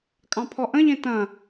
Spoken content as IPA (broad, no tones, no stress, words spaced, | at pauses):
kʼɑ̃pʰɔʔə̃ʎẽ tɐ̃